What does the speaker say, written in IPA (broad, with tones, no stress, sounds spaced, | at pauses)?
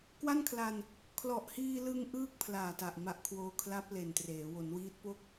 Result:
k w a˥˩ n kʰ l a˧ n | kʰ l ɔ˨˩ ʔ h iː˧ l ɯ˧ ŋ ʔ ɯː˥˩ k̚ pʰ l aː˨˩ t a˨˩ ʔ m a˨˩ ʔ kʰ w oː˧ kʰ l a˦˥ p̚ l e˨˩ n t r eː˩˦ w o˩˦ n w iː˦˥ t̚ p o˥˩ k̚